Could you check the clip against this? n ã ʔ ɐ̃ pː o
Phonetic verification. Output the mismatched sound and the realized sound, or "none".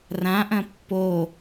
n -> r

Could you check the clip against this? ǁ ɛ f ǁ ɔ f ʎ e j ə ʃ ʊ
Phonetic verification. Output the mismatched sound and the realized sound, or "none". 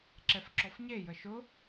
ʎ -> ɲ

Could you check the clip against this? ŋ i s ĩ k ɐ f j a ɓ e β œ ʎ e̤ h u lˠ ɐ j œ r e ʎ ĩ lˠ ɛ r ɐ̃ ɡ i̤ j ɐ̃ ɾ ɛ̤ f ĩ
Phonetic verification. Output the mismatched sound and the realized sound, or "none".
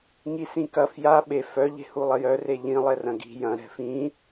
β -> f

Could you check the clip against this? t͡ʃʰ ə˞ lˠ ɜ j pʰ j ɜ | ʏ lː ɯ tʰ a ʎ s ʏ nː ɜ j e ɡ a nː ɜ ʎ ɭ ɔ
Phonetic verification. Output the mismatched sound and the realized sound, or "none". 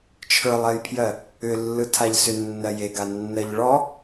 none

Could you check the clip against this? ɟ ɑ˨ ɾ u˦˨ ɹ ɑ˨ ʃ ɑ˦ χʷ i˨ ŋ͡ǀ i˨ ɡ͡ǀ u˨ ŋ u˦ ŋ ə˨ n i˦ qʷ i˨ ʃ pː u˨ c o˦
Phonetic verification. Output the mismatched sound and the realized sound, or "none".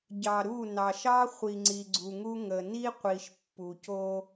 ɹ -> n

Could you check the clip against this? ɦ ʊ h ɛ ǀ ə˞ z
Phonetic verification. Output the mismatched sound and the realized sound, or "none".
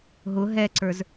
h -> ɦ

